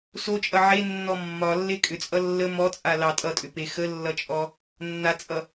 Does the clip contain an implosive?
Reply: no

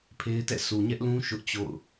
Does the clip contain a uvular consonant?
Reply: no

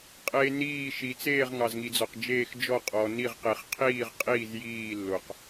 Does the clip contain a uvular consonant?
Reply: yes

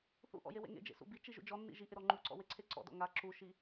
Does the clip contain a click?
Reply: yes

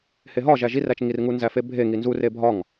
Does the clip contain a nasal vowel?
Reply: no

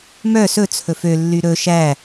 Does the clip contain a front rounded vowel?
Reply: yes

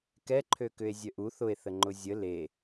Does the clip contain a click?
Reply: yes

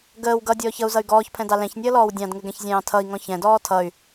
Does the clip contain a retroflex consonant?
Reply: no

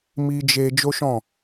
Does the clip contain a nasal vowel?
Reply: yes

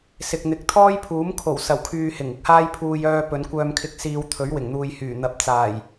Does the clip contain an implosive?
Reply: no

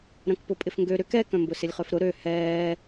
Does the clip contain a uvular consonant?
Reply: yes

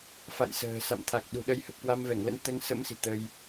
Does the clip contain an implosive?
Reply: yes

